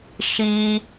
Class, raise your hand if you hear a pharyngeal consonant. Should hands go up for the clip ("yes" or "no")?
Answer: no